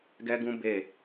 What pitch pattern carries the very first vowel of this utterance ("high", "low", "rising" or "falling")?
high